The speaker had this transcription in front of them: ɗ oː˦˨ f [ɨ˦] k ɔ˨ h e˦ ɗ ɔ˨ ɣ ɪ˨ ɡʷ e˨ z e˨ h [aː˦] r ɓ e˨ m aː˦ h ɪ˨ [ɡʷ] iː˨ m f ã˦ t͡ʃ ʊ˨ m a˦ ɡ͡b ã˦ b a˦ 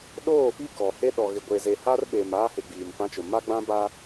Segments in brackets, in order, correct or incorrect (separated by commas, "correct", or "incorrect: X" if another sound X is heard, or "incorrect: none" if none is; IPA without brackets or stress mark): incorrect: i˦, incorrect: a˦, incorrect: ɡ͡b